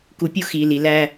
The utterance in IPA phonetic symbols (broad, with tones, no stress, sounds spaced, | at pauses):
k u˨ pʲ u˦ x iː˨ l i˨ l æ˦